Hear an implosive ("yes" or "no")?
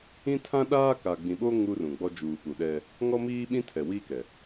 yes